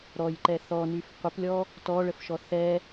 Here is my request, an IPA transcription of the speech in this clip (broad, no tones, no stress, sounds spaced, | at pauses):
ɾ ɔ j ǃ ɛ θ ɔ n y f qʷ ə p lʲ ɔ | t ɔ ɭ ə f ʃ ɔ θ ɛ